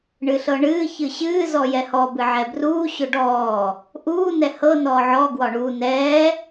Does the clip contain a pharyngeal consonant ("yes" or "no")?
yes